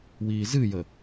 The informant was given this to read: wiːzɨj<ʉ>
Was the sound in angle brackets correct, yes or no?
no